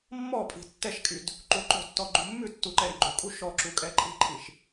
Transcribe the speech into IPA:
mːɔ pʼi̤tːɛʃkʼyd | ǃuǃo̤tːɔ ɡ͡ǃumːʉtːu ǃɛɾiɡ͡ǃukʼu ʃɔǁu kʼɛǃʼi̤ǃʰiʃ

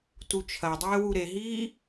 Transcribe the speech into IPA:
tut͡ʃʰɐdˤeː wuɾeɦiː

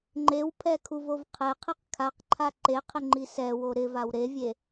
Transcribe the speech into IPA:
ŋ͡ǃewpʰɛkʰuvov qʰɛqʰiq kʰaqǃʰa ǃeqʰɪŋ͡ǃi sɛwo ɾɪvaw ɾevʲe

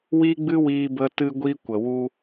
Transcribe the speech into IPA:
wi˦ɡ͡bɨ˦wiː˧bə˧ tɨ˧ɡʷi˧kʷə˨ wu˧

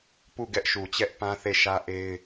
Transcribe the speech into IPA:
pu˦˨ɡɛ˦ʔʃu˨t͡ɕɛ˦ʔ pã˦θe˦˨ʃä˦ ʔe˦ɪ̯

